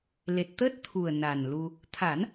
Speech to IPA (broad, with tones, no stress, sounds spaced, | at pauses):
l e˨˩ t̚ t̪ əː˦˥ t̚ t̪ʰ u˨˩ ə̯ n a˨˩ n l u˧ | t̪ʰ a˨˩˦ n